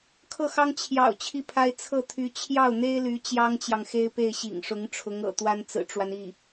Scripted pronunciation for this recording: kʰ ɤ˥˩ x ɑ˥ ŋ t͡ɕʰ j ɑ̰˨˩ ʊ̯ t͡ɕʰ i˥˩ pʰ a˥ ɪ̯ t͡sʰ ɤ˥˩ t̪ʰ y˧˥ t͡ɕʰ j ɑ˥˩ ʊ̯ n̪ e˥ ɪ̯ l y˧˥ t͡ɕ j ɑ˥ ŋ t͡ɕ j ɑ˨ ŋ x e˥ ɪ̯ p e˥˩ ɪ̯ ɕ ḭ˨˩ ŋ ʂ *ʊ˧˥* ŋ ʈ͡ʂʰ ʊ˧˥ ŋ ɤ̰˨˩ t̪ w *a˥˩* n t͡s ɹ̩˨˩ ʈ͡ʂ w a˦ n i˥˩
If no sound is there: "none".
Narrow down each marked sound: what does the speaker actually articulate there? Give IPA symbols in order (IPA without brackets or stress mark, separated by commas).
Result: ʊ˧˥, a˥